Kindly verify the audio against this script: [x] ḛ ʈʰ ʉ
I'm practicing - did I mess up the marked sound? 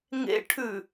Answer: yes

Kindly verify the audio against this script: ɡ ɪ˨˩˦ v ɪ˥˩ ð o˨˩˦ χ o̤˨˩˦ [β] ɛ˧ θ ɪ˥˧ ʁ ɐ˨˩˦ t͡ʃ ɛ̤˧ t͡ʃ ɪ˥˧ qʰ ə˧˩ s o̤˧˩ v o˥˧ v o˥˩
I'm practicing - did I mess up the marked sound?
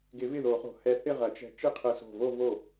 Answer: yes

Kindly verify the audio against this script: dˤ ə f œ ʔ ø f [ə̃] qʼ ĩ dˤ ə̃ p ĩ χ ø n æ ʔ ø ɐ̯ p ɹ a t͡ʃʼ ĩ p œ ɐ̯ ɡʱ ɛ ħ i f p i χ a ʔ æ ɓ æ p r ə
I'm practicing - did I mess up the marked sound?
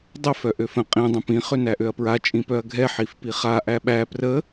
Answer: no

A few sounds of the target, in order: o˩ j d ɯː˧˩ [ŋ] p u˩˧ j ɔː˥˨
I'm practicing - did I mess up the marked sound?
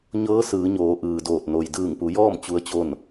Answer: no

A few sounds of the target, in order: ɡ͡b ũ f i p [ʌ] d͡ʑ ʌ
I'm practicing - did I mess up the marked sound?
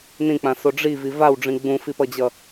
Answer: no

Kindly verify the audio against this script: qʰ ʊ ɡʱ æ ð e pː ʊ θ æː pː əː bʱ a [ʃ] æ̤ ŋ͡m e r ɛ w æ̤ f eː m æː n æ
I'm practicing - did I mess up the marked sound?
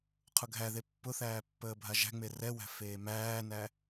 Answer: yes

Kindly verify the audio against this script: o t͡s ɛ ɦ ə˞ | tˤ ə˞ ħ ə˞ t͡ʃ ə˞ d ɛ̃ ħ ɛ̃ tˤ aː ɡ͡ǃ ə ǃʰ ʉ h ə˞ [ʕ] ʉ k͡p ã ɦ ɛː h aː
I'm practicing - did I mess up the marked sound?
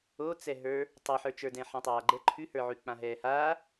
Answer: no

